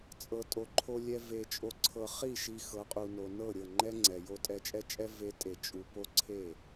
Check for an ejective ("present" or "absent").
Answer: present